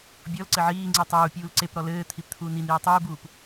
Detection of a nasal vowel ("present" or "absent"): absent